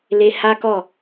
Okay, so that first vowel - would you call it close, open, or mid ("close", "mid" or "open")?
mid